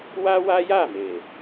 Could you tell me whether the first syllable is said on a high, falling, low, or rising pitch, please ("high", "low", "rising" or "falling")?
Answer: high